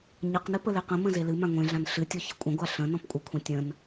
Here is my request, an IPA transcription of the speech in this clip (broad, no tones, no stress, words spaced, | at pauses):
ɲəqnɨ pəleqə̃mə̃ zelɨmã ŋʷẽɮãn ɬɨtʲɔ çəkʷʼə̃ɡʷa ɬə̃ nɔ̃pkʷʼɨkʷʰẽ tʲə̃n